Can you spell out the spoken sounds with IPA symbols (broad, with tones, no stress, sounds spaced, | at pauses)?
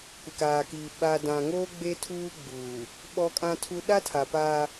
kʷ ɪ˨ k aː˨ k i˨ ɓ a˨ d ã˨ ŋ oː˦ ɡ͡b e˦ tʰ uː˦ ɡ͡b uː˨ | ɓ ɔ˦ kʼ ã˦ tʰ u˦ ɗ a˦ tʰ a˨ p aː˦